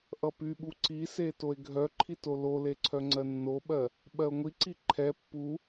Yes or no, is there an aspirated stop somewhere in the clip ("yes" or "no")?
yes